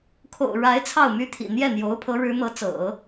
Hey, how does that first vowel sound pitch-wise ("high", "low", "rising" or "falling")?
low